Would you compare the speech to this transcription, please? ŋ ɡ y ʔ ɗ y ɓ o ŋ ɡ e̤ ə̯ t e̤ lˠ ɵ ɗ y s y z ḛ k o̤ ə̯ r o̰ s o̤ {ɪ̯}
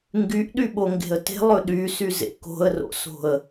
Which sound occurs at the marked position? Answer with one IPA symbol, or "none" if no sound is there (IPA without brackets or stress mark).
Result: ə̯